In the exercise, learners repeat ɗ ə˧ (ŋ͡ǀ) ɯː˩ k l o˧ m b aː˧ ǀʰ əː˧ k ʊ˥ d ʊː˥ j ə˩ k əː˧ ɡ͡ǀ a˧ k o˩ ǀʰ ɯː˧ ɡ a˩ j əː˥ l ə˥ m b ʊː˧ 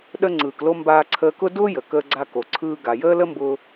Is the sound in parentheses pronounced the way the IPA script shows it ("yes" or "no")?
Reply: yes